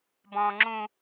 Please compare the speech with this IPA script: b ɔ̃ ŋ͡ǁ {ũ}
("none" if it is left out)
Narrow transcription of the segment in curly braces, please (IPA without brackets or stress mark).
ũ